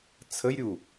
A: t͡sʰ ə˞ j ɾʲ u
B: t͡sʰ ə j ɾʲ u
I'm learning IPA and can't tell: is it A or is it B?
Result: B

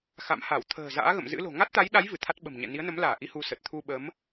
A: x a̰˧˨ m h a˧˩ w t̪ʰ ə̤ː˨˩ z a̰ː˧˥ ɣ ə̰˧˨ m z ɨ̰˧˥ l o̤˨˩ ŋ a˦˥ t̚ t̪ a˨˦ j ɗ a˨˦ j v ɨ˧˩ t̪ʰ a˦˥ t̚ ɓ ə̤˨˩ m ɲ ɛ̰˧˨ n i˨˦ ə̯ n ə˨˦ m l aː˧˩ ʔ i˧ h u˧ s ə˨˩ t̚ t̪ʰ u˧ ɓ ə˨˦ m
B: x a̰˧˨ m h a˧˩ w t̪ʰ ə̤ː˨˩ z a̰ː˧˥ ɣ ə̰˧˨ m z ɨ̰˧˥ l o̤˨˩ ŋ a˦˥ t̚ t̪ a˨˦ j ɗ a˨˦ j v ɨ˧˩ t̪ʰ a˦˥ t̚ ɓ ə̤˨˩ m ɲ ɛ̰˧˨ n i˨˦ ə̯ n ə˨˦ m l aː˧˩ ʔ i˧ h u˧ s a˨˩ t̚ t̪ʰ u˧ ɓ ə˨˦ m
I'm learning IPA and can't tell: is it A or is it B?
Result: A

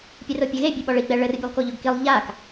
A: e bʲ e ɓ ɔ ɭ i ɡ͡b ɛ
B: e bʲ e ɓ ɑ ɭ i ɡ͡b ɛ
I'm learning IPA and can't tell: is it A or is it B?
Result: A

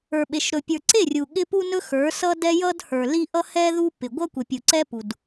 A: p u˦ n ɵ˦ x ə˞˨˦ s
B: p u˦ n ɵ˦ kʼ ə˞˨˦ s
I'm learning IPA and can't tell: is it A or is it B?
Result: A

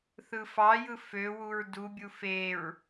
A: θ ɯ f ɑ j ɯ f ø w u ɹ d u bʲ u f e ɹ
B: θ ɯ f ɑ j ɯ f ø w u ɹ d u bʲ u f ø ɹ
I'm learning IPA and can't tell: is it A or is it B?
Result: A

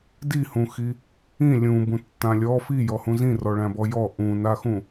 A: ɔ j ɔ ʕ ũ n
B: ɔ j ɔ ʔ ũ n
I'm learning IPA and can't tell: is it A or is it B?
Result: B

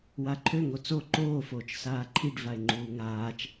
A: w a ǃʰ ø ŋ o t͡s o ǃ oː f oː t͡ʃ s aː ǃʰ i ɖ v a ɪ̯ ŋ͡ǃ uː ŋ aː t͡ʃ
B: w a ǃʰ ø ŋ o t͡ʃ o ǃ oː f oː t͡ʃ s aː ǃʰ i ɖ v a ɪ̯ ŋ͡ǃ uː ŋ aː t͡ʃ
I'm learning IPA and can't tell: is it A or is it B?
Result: A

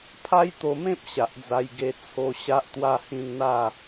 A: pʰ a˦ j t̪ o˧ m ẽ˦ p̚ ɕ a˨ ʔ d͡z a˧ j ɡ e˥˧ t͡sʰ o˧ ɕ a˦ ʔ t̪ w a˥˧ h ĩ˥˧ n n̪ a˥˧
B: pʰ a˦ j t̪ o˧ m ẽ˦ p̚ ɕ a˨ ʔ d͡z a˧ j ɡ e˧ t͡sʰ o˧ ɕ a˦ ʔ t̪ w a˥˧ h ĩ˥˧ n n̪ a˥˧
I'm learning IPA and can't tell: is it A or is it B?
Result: B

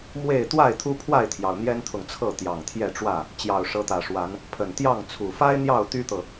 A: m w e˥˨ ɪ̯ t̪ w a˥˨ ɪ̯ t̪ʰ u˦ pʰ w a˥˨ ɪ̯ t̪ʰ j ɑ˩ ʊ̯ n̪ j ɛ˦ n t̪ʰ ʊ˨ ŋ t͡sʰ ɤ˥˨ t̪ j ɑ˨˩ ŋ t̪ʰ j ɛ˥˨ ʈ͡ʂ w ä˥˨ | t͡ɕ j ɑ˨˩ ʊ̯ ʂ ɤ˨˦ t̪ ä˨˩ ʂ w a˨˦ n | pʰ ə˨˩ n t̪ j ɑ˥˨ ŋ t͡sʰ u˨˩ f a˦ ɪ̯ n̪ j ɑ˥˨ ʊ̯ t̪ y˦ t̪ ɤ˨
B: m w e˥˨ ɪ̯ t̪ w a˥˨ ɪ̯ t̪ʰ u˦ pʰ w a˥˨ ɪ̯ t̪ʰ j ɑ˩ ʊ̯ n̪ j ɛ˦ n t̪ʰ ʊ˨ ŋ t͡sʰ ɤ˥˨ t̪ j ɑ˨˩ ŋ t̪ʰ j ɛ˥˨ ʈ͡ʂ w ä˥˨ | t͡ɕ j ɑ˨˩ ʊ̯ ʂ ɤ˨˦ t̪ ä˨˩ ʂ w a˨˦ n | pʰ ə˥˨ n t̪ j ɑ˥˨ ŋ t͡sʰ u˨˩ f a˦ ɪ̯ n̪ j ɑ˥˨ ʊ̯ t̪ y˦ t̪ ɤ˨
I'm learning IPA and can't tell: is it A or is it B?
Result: A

